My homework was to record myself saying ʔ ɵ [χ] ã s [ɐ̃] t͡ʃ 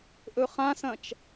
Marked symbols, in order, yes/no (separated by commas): yes, yes